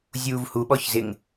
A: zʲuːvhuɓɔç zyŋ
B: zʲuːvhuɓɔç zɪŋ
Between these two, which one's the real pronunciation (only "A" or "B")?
B